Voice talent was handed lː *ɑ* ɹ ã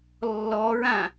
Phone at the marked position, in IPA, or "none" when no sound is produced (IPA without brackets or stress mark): ɔ